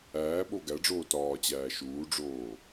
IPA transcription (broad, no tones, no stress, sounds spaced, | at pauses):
æː ɓ o ɡ æ ɖ͡ʐ oː t ɒː t͡ɕ æː ʃ uː ɖ͡ʐ oː